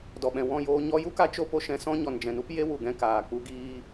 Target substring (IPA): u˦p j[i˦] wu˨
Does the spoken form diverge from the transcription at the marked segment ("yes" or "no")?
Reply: yes